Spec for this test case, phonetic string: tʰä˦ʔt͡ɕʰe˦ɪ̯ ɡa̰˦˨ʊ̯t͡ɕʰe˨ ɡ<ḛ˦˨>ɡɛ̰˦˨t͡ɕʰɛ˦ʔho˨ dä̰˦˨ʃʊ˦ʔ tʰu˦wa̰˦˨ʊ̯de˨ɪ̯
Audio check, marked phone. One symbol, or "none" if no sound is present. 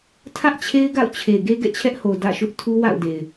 e˦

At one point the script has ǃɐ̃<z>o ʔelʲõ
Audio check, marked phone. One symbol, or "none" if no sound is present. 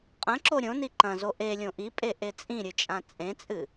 z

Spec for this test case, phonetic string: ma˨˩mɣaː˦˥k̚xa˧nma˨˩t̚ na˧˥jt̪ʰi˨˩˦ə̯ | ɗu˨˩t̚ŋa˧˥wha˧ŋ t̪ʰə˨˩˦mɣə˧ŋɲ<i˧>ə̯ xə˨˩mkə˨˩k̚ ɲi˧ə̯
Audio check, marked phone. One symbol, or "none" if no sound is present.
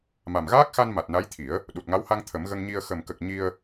i˧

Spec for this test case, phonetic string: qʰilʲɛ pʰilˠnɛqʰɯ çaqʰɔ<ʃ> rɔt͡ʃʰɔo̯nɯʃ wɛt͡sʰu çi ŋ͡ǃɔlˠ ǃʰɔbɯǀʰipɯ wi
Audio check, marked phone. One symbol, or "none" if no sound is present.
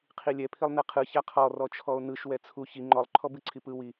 none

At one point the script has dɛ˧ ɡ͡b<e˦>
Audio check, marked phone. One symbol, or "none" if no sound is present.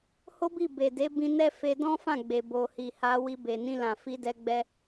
ɛ˦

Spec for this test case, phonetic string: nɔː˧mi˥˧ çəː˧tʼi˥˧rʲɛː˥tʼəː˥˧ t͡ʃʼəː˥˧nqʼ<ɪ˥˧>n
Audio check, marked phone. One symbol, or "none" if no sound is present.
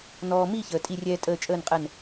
ɛ˥˧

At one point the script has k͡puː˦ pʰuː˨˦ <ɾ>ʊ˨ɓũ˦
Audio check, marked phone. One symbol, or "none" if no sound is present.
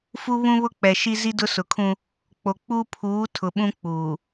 tʰ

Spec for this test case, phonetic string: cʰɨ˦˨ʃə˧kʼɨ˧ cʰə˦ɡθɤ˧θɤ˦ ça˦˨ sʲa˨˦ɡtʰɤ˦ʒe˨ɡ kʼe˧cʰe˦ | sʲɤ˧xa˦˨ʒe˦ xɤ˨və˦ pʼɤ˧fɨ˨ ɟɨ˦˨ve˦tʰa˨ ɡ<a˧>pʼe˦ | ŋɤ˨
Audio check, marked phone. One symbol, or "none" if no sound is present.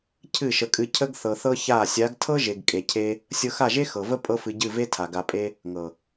a˧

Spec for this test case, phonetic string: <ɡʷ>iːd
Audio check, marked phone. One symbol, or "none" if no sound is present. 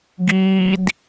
ɡ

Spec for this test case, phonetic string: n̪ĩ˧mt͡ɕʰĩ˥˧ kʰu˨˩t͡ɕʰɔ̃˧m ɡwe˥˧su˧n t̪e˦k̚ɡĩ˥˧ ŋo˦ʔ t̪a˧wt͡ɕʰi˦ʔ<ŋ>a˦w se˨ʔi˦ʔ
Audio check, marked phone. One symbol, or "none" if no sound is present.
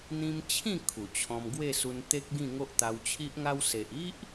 ŋ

